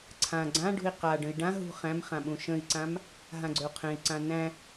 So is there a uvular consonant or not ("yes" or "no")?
yes